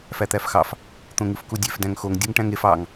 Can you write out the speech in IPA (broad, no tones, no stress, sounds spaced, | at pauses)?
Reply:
f æ t̪ æ f x ɑ f | t̪ õ ŋ ɯ f k u dʲ e f d æ̃ ŋ x o ŋ dʲ u ŋ ʈ æ̃ ŋ e f ɑ ŋ